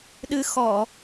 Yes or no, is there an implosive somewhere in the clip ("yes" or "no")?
yes